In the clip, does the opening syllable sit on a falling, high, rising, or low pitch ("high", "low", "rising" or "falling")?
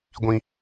low